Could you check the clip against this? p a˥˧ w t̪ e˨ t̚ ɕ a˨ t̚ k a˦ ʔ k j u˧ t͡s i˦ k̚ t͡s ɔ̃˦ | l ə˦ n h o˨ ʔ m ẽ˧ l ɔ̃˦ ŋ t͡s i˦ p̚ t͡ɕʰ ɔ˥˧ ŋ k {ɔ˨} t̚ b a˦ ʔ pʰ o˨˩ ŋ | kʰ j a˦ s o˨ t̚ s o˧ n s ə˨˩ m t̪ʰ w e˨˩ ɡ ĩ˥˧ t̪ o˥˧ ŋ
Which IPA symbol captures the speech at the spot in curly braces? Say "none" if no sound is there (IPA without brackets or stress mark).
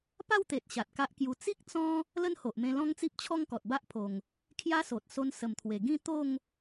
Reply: ɔ˨